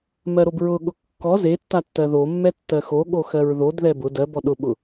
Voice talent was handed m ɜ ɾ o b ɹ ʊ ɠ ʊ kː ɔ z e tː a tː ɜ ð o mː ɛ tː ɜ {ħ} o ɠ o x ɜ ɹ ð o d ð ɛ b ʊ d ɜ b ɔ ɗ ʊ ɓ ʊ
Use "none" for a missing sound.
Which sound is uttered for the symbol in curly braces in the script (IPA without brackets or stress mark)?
x